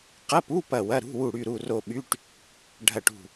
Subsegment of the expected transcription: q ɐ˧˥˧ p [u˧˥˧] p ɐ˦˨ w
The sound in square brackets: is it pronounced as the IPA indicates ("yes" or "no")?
yes